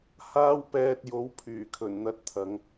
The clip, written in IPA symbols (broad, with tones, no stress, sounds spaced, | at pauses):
h aː˥ w p ɛː˧ t̚ j o˨˥ w pʰ yː˨˩ kʰ ɵ˨˩ n n̪ ɐ˧ t̚ t̪ʰ ɐ˨˧ ŋ